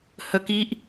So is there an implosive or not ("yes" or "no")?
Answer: no